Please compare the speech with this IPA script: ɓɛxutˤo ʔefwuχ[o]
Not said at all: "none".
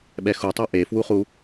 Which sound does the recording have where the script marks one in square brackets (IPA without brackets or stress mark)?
u